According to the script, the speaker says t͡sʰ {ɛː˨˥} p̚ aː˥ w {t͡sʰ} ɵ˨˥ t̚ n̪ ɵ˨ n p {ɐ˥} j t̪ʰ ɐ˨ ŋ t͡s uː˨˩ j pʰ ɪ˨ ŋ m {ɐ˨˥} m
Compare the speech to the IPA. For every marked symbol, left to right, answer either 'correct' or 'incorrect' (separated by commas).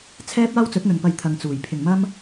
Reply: incorrect, incorrect, incorrect, incorrect